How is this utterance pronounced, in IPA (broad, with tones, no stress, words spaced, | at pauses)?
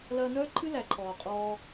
lɐː˧nœː˦ǃʰɨ˦ læ˨ǃʰɔː˨ qʼɔː˧